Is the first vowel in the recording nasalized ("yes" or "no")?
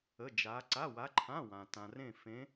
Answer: no